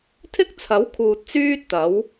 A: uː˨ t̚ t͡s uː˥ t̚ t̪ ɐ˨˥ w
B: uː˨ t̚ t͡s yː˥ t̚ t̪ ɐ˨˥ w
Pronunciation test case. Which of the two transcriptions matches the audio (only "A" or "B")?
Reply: B